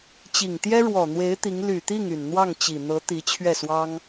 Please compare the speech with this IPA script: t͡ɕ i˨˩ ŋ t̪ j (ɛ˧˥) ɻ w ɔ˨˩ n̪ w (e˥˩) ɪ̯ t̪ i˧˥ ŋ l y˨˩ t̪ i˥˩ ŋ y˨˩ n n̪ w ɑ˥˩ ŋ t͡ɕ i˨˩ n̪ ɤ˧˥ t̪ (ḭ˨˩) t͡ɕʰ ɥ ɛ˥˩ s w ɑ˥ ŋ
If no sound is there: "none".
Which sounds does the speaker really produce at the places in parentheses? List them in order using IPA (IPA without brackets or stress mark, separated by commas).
ɛ˥, e˧˥, i˧˥